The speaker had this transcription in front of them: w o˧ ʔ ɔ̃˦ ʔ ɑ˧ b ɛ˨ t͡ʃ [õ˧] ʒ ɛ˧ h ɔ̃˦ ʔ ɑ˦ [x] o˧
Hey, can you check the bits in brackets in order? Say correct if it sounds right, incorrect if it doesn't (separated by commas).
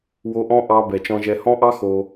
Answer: incorrect, correct